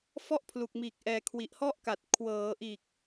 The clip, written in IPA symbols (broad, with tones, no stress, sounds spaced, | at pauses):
f ɔ˥˩ ʔ pʰ l u˨˩ k̚ m iː˨˩ k̚ ʔ ɛː˨˩ kʰ w i˨˩ ʔ h ɔ˥˩ ʔ k a˨˩ t̚ kʰ w ɤː˩˦ ʔ iː˨˩ k̚